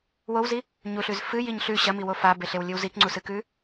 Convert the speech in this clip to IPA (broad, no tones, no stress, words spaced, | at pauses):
wowzi | ɲuɬʉz fɨjiɲ ɬʉ ɕɐmiwo fabeɬewlʲɨw zikŋ͡ǀusɨkʉ